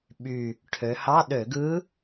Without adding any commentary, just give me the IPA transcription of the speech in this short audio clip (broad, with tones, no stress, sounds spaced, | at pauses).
ɓ y˨˩ | ʈʰ ø˩˧ h ɑ˧˥˧ ɗ ø˧˩˧ ɡ ɯ˧˥